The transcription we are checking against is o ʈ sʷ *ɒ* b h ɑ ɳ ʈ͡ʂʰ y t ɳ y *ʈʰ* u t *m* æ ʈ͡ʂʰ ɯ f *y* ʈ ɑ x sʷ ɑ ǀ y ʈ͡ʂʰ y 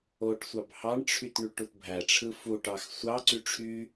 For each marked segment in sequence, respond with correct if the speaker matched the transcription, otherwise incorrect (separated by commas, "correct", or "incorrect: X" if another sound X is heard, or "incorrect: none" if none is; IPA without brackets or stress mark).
incorrect: ɑ, incorrect: ʈ, incorrect: bʱ, incorrect: u